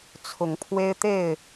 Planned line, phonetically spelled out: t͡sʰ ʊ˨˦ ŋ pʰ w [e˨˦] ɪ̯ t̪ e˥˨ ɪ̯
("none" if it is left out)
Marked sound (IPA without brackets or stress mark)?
e˦